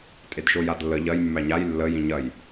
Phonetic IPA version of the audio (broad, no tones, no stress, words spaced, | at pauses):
tʼedʃojadlːə ʎɐj mːæɲaj lːə jĩɲɐj